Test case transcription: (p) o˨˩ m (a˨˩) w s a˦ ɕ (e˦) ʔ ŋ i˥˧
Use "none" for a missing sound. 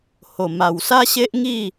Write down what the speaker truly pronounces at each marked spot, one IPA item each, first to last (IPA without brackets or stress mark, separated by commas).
h, a˨˩, e˦